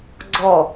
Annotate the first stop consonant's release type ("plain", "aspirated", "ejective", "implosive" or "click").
click